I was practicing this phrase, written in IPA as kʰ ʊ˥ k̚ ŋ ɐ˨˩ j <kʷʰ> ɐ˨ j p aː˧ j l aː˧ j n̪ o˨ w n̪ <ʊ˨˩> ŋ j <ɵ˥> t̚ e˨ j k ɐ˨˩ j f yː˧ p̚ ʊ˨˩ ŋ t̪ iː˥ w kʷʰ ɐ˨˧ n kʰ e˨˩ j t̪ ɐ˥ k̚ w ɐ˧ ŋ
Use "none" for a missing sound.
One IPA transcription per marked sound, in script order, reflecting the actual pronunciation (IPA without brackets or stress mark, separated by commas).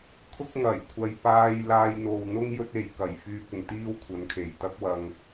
kʷʰ, ʊ˥, ɵ˥